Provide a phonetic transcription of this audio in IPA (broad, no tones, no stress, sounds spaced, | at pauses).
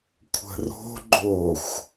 kʷʰ ə̤ r o̤ ɡ͡ǃ o xʷ